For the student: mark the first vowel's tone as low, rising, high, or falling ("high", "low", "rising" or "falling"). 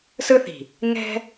high